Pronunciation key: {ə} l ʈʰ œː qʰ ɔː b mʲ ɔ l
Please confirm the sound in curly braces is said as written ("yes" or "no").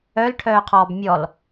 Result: no